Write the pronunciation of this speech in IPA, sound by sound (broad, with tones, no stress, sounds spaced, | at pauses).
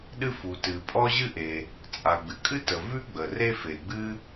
ɗ ɨ˥ f u˩ t ɨ˩ pʼ ɔ˥ ʑ ɨ˥ ʔ e˩ | t͡sʼ a˩ ɡ͡b ɨ˩ kʼ ɨ˥ t ə˩ v ʉ˥ ɡ͡b ə˩ r e˥ f e˩ ɡ͡b ɨ˥